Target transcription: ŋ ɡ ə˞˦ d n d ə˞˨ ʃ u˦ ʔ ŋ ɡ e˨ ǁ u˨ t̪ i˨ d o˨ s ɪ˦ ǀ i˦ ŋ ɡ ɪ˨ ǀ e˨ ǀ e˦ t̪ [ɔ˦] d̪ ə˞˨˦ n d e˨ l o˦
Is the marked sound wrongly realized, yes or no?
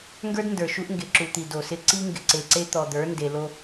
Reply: yes